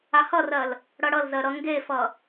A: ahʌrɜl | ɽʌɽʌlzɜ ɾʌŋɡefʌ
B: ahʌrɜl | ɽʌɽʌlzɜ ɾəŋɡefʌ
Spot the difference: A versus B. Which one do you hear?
A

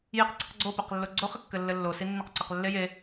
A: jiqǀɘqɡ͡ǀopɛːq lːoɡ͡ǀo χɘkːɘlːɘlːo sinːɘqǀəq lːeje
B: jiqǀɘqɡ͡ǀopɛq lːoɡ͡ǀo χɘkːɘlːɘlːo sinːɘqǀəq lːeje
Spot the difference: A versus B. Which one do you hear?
B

